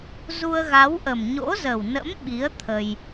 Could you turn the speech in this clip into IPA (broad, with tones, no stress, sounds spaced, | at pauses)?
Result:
z u˧ ə̯ ɣ a˨˦ w ʔ ə˨˩ m ɲ o̰˧˥ z ə˨˩ w n ə̰˧˥ m ɓ i˨˦ ə̯ t̪ʰ ə˧ j